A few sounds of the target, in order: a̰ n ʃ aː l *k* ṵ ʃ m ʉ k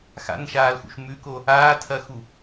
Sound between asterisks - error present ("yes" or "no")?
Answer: yes